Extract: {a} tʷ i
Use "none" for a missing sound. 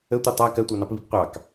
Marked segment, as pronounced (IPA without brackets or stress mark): ə